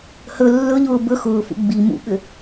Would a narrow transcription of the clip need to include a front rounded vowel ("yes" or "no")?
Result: yes